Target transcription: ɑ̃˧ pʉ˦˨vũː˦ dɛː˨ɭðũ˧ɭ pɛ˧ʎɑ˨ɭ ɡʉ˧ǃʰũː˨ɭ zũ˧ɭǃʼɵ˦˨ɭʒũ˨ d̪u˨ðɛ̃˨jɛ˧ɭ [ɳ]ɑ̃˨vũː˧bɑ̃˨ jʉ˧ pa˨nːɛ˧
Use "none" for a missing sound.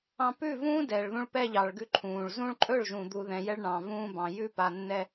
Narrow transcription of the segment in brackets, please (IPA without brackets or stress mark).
ɳ